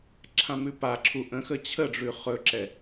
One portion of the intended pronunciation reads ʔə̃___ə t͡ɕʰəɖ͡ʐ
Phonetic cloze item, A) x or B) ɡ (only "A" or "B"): A